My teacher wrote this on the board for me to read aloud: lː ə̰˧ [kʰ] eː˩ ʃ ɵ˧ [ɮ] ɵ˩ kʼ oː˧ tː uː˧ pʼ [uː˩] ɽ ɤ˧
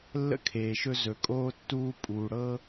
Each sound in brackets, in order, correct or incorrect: correct, incorrect: z, correct

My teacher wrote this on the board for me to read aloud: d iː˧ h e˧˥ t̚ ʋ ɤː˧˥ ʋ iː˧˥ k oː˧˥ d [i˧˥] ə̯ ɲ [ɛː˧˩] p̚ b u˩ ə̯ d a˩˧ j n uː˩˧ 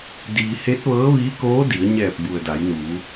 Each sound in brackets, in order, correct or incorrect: incorrect: i˩˧, correct

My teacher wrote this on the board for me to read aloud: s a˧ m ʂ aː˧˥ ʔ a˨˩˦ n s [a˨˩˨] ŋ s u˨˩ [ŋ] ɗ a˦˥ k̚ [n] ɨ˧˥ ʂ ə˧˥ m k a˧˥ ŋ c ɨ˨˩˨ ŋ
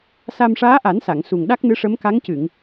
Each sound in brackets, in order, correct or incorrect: correct, correct, correct

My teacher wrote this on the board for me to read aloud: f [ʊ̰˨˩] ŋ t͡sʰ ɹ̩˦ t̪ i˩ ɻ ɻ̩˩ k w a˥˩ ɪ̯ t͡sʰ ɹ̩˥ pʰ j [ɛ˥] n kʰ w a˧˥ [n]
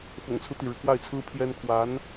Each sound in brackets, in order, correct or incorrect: correct, correct, correct

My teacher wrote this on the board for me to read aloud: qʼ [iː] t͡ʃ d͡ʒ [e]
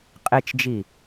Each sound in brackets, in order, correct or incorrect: incorrect: i, incorrect: i

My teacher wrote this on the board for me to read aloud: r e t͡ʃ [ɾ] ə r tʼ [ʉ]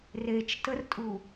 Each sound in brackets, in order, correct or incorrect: incorrect: t, incorrect: u

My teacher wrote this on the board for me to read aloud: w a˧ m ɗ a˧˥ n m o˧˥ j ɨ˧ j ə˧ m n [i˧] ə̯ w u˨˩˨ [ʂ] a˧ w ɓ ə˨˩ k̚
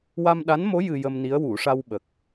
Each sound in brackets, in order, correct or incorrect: incorrect: i˧˥, correct

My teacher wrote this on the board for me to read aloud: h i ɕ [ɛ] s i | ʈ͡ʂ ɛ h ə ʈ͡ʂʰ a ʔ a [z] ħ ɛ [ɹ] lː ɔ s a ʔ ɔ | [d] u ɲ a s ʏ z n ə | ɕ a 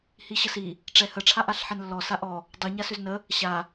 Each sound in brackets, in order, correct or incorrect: incorrect: ə, incorrect: ɬ, incorrect: n, incorrect: dˤ

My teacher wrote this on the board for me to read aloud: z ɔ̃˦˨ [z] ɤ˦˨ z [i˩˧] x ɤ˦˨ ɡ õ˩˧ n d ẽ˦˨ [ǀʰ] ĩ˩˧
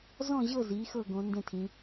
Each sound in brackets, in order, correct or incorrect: incorrect: ʑ, correct, incorrect: tʰ

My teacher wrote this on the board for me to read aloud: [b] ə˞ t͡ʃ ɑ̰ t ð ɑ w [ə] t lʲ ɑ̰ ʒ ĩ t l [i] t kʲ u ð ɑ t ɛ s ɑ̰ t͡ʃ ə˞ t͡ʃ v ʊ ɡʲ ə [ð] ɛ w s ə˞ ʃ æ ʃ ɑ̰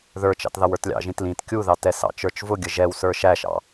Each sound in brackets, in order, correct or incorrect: incorrect: ð, incorrect: ə˞, incorrect: ĩ, incorrect: ʒ

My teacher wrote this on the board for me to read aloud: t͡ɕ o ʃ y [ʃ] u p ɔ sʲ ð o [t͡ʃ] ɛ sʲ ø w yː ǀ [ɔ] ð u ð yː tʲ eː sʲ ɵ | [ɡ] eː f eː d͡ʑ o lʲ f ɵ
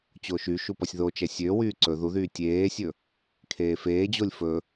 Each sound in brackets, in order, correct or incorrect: correct, correct, incorrect: ɵ, incorrect: kʰ

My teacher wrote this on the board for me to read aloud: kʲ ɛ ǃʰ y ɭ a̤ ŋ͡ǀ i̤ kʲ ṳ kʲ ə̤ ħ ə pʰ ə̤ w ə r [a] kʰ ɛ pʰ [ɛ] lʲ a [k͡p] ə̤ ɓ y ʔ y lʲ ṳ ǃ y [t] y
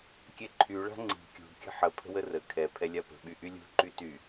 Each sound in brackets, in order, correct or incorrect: incorrect: ə, correct, incorrect: p, correct

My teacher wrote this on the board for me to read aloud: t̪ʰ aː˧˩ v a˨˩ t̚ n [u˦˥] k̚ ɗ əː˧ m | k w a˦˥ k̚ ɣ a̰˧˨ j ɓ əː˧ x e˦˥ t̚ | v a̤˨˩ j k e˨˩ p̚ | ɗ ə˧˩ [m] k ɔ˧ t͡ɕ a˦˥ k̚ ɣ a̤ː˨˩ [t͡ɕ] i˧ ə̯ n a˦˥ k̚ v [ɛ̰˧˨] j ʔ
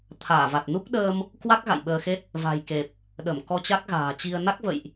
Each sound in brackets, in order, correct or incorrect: correct, correct, correct, incorrect: ə̰˧˨

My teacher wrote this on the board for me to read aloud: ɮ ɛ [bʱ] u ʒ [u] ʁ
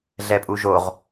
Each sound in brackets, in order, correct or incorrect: incorrect: pʼ, incorrect: o

